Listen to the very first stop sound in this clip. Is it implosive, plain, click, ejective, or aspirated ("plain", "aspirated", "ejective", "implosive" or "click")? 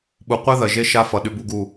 implosive